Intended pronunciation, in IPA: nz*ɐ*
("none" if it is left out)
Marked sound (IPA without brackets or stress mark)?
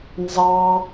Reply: ɑ